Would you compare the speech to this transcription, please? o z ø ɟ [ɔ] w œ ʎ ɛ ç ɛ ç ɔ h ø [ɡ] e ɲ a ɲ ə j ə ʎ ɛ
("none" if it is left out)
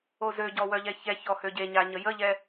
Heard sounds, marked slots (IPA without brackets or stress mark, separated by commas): ɔ, ɟ